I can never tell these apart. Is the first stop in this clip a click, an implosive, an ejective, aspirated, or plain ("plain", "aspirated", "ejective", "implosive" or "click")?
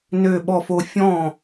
implosive